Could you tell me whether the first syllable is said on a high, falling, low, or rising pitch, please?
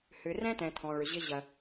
low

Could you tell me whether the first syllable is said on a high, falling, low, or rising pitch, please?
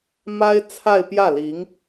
high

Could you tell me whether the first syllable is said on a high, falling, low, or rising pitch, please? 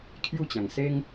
falling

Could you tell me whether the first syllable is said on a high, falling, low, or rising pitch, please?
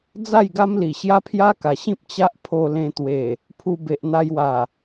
falling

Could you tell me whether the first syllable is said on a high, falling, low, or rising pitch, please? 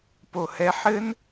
low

